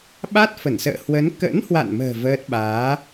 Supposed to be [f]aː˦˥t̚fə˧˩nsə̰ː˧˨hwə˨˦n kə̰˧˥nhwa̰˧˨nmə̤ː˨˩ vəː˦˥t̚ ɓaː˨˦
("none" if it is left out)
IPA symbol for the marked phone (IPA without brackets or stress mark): ɓ